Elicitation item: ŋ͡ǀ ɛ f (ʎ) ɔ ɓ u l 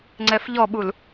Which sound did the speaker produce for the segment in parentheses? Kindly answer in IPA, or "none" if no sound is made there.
ʎ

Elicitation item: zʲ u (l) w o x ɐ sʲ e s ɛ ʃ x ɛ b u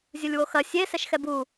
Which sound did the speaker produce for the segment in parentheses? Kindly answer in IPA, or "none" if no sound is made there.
lʲ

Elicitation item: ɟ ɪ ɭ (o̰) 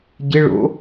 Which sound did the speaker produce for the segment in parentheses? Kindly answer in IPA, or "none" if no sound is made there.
o̰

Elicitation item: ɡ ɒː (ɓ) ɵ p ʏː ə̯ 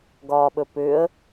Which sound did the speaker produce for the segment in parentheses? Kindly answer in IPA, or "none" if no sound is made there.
ɓ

